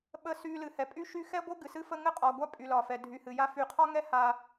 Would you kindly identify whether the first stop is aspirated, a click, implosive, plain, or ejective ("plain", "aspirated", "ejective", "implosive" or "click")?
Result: implosive